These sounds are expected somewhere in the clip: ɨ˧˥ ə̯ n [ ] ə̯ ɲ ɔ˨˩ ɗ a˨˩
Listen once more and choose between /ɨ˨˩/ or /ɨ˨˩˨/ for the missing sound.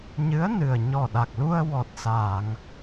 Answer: ɨ˨˩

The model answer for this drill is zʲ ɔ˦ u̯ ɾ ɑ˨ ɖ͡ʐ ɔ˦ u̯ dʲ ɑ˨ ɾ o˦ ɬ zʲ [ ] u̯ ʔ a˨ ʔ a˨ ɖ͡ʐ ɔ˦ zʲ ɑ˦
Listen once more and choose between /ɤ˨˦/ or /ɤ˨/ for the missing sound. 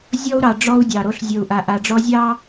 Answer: ɤ˨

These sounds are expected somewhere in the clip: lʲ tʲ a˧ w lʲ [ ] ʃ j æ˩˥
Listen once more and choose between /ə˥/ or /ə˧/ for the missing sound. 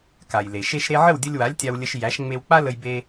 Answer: ə˧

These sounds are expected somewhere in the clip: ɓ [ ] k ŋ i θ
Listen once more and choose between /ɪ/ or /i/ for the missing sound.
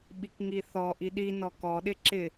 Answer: i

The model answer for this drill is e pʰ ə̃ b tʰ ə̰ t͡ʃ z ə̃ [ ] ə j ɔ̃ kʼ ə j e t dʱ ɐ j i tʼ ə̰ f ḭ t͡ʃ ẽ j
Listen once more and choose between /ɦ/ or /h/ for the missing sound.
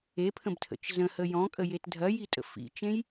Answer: h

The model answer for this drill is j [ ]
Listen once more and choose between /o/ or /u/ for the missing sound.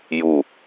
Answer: u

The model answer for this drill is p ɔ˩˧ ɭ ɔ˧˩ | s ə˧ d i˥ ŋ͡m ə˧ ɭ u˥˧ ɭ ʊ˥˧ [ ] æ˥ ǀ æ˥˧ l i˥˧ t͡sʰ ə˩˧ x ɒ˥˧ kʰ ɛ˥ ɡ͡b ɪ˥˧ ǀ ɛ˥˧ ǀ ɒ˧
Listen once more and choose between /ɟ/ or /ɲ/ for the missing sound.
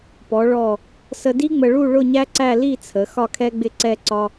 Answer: ɲ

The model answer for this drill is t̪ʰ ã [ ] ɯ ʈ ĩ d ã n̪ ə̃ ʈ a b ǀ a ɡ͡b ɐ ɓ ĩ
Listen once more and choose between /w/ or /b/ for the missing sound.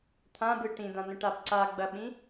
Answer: b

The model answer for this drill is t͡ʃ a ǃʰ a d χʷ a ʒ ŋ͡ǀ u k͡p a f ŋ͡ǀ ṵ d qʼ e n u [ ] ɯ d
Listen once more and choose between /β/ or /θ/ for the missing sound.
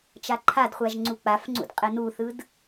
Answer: θ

